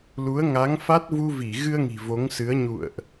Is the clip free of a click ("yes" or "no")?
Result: yes